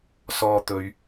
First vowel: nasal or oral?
oral